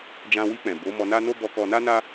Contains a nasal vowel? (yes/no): yes